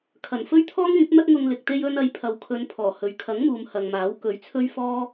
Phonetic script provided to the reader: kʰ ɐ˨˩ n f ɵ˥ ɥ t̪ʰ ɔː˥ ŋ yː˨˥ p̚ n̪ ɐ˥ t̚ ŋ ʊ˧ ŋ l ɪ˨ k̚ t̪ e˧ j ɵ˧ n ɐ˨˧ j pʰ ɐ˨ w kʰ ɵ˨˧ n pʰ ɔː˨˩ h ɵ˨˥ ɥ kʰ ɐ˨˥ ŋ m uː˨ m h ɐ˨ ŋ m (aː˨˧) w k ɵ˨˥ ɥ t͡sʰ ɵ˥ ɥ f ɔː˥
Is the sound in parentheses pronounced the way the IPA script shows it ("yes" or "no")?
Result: no